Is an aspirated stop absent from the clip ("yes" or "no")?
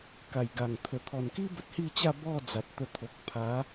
no